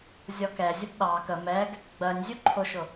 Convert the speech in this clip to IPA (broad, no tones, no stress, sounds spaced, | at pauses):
zʲ ɔ k ɛ zʲ ə b ɗ ɑ k ə m ɛ ɡ | ɡ͡b ɜ nʲ zʲ u ǃʰ ʊ ʃ ʊ